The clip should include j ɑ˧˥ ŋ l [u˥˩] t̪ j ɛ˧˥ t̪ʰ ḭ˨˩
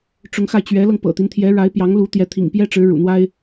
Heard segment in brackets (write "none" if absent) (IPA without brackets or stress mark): u˧˥